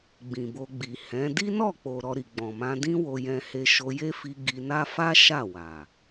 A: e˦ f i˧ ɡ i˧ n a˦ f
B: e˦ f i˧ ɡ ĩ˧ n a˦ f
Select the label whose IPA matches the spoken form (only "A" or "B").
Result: A